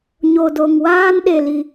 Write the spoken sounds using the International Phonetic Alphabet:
ɲ o˧ d o˧ ŋ w aː˦ n ɗ e˧ l i˧

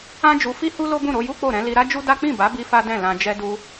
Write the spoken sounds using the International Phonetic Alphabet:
ã˦ d͡ʒ u˧ f i˦ h u˦ l o˦ b ũ˦˨ ɾ o˨˦ j u˦ k͡p o˦˨ ɾ ɛ̃˨˦ l i˧ ɾ a˦ d͡ʒ u˦ d a˦ k͡p ĩ˦˨ b a˨˦ b i˧ f a˦ d ɛ̃˦˨ l ã˧ d͡ʒ ɛ˧ d u˧

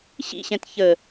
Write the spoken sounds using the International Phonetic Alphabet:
ɕ ḭ ɕ ɛ̃ t ç ə

